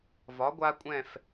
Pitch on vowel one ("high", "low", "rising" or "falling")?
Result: rising